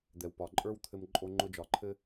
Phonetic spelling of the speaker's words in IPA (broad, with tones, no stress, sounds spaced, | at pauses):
d̪ ɛ˨ w p ɒ˨ ǃʼ ə˞˦ w t̪ʰ ɘ˧ m ǃʼ o˧ ŋ͡ǃ ʊ˧ d͡ʒ ɒ˨ ǃʰ ɘ˦